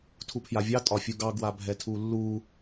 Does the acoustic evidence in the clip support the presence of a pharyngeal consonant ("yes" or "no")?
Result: no